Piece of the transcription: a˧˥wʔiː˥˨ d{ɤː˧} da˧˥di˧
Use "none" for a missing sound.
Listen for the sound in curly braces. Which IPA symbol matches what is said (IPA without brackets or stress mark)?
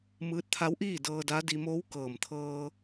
ɤː˧